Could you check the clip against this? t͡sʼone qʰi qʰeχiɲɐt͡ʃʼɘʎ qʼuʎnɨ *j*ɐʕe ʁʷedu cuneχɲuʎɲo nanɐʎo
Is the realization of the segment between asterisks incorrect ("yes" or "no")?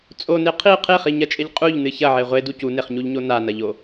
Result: yes